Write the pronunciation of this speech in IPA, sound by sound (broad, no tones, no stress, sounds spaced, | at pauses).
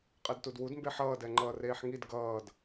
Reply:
qʼ ɛ d t u d w u d m b e ħ ʌː d ɛ ŋ͡ǃ ʌː r eː ħ ŋ i d ɡ ʌː d